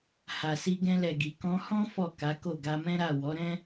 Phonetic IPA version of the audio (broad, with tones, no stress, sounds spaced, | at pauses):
h a˨ s i˧ ɡ ɛ̃˧ l ɛ˨ ɡ i˨ k ɔ̃˧ h ɔ̃˦ f ɔ˦˨ k a˨˦ k o˦˨ ɡ a˧ m ɛ̃˦ ɾ a˦˨ w ɔ˨˦ ɾ ɛ̃˦